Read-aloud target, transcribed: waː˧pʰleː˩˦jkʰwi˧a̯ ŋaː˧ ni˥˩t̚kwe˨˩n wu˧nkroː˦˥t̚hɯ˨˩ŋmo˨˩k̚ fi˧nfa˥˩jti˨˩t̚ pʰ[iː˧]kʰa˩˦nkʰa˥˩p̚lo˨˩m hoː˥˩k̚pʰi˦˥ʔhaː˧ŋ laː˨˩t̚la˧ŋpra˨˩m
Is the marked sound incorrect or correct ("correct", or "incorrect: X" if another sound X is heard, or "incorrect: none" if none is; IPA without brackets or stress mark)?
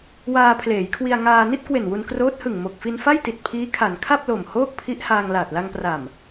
incorrect: iː˦˥